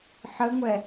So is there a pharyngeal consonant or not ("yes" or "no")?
yes